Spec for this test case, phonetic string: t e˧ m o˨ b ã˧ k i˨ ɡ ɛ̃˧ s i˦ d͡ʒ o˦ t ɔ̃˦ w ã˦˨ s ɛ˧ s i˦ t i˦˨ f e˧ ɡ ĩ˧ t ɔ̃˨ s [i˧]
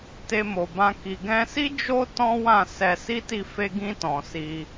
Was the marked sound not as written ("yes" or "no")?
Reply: no